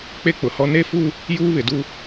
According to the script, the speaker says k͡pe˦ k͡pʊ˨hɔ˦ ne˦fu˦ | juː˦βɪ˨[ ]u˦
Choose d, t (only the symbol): d